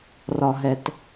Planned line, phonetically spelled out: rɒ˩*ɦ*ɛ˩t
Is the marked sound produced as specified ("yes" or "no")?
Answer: yes